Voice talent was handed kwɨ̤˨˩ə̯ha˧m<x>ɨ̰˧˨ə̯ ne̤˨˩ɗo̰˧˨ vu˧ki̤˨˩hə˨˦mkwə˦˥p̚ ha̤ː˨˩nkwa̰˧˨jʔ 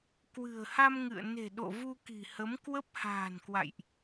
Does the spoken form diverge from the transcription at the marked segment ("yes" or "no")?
yes